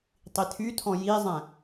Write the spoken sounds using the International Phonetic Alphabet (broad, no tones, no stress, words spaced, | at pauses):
tˤitʰytʰɔ̃ jizˤɛ̃